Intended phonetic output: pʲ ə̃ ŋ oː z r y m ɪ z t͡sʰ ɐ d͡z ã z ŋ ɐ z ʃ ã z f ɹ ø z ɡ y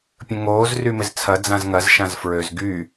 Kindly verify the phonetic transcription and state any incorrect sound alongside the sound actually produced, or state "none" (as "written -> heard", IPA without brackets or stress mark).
none